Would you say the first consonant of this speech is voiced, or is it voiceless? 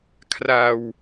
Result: voiceless